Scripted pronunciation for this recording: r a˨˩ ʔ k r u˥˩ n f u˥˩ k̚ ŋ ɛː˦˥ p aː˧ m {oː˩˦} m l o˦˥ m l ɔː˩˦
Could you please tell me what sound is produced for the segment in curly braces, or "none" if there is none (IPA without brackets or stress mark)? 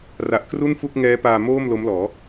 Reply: oː˥˩